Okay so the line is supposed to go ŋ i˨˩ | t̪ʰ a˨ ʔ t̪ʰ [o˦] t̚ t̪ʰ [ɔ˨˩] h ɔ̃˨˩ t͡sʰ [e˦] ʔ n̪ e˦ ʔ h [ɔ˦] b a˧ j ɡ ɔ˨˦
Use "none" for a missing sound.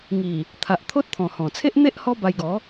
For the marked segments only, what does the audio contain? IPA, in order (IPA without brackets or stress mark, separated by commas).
o˦, ɔ̃˨˩, e˦, ɔ˦